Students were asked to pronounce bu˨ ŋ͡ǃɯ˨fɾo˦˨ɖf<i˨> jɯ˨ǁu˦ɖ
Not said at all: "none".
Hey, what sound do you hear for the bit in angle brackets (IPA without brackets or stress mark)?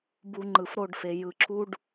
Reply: e˨